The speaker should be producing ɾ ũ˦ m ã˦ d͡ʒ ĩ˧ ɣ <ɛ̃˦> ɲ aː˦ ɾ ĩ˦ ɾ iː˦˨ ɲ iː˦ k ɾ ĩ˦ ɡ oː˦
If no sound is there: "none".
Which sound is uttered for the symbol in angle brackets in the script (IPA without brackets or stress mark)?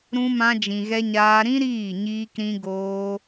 ɛ˦